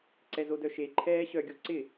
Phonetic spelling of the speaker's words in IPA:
ǀ ɛ z o d œ ʃ e ǃʰ ɛː ɕ œ ɡʲ o ǀ ɪ

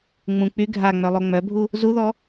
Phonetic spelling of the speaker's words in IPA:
ŋ͡m ũ k͡p y ɡʱ a ŋ͡m œ lˠ o ŋ͡m œ bʱ u | z u ð ɔ

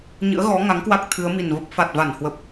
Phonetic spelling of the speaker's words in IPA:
ɲ ɨ̰˧˥ ə̯ ɣ ɔ˨˦ ŋ a˨˦ ŋ k w a˦˥ k̚ t̪ʰ ɨ˨˦ ə̯ m i˨˩ n v ə˦˥ p̚ f a˨˩ t̚ v a˧˩ n h w ə˨˩ p̚

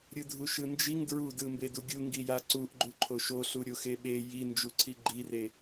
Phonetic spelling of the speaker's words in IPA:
ɾʲ ɯ dʱ u ʃ ɯ n d͡ʒ i ŋ d ɹ u d ɯ m b e d u ɡʲ u ŋ ɡ i j a ǀ u ʔ ɡ͡ǃ u ǃʰ o ʃ o ɬ u ɾʲ o x e ɓ e j i n d͡ʒ u ǀʰ i ɡ͡ǃ i r e

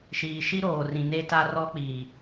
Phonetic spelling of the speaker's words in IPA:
ʃ iː˨ ʃ i˦ ɾ oː˨ r ĩ˨ n e˦ t a˦ r ɔ˦ k͡p iː˨

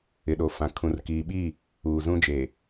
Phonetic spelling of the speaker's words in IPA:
ɪ˨ ɗ o˨ f ã˨ kʰ ũ˨ r k iː˨ ɓ iː˦˨ | uː˨ z ũ˦ d͡ʒ eː˨

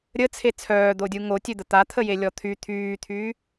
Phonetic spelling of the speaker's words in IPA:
ɾʲ ə t͡sʰ e t͡sʰ œː d̪ o dʲ u ŋ o tʲ ø d̪ ə t̪ a t̪ʰ ə j e lʲ ɔ t̪ʰ y t̪ʰ yː t̪ʰ yː

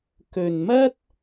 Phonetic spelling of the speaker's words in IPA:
k ɵ˨ n m ɐ˥ t̚

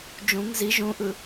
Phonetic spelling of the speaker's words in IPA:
d͡ʒ ũ ŋ z i ʒ ũ ʔ ɯ

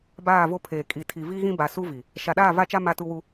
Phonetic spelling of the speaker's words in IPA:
b aː˦˨ v o˦ pʰ eː˨ kʼ i˨ tʰ i˨ v i˦ ɣ ĩ˦ b a˨ s u˦ v i˨ | ʃ a˨ ɗ aː˦˨ v a˦ t͡ʃ a˦ m a˦ t u˦ w u˦

